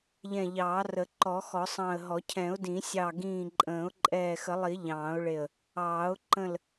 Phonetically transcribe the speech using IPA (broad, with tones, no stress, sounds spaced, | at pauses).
ʎ ɛ̃˧˩ ʎ ɑː˨˩˦ r ə˨˩˦ ǃ ɔ˨˩˦ x ɔ˨˩˦ sˤ ɑ̃˧˩ ə̯ ɦ ɔ˨˩˦ cʰ ɛ̃˨˩˦ ʊ̯ d ĩ˨˩˦ sʲ ɑ˧˩ ɡ ĩː˧˩ ǃʼ ə̃ː˨˩˦ ʊ̯ ǃʼ ɛː˧˩ x ə˨˩˦ lˠ i˨˩˦ ʎ ɑ̃ː˨˩˦ ʊ̯ ɭ e˧˩ ə̯ | ɑː˨˩˦ ʊ̯ ǃ ə̃˧˩ l